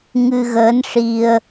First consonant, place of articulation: velar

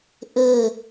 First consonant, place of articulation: glottal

